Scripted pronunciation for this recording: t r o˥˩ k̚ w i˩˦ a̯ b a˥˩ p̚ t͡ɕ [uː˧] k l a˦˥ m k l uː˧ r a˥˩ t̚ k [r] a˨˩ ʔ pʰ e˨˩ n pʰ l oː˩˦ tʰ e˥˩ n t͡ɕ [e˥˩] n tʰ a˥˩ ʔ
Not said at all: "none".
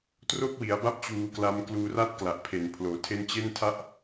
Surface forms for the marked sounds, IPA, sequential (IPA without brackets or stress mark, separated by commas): uː˧, l, e˥˩